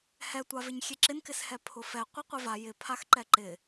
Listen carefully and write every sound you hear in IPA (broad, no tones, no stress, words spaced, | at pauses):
hɛtʷavɪɲ xʲeǁɪnkɪshɛ pʰʊfɛ qʷeqʷeva jɪ pʰaxǃɛǃɪ